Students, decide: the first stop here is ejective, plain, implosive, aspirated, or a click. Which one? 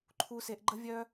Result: click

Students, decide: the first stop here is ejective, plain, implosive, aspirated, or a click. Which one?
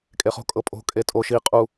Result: ejective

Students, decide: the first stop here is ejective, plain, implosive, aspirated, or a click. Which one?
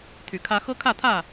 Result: aspirated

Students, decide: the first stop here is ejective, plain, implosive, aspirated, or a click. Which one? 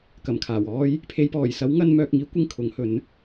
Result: plain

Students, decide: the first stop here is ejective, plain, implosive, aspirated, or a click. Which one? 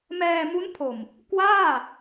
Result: aspirated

